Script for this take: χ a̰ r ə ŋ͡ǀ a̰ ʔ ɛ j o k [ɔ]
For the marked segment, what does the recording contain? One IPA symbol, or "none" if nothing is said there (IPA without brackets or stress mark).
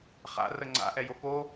o